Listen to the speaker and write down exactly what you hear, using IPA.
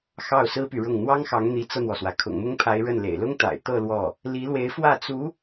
x ɑ˥˩ ʊ̯ s ɹ̩˥ p y˨ ɻ ʊ˥˩ ŋ n̪ w ɑ˥ ŋ x ɑ˧˥ ŋ n̪ i˧˥ t͡s ɤ˧ n̪ w ɔ˩ s w ä˩ kʰ ʊ̰˨˩ ŋ m ʊ˥ ŋ pʰ a˧˥ ɪ̯ ɻ ə˥˩ n l ḛ˨˩ ɪ̯ l ʊ˥ ŋ t̪ a̰˨˩ ɪ̯ t̪ ɤ˥˧ l w ɔ˥˩ | l i˧˥ l w e˧˥ ɪ̯ f w ä˥˩ t͡s u˧˥

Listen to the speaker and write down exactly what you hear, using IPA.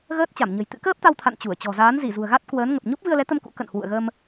ɣ əː˦˥ t̚ t͡ɕ a˧˩ m ɲ ə̤˨˩ j t̪ ɨ̰˧˥ k əː˦˥ p̚ t̪ a˧ w t̪ʰ a̰˧˨ n t͡ɕ u˧˩ ə̯ t͡ɕ ɔ̤˨˩ z aː˨˦ n z i˧˩ z ṳ˨˩ ə̯ ɣ a˦˥ t̚ k w əː˨˦ n ŋ ə˨˩ p̚ ɲ o˦˥ p̚ v ɨ˧ ə̯ l ɛ˨˦ t̪ ə˧ m k ṵ˧˥ k ə̰˧˨ n h w ṵ˧˨ ə̯ ɣ ə˧ m

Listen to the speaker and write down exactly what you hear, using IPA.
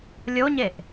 lʲ o ɲ e ʔ

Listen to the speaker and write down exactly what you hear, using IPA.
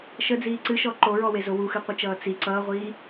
ʃ ə d͡z iː ǀ ɨ ʃ ɔ ǃ o ɹ ɔ w e z o w u x ɨ qʷ ɪ t͡ʃ ʌː t͡s i ǀ ʌː ʁʷ iː

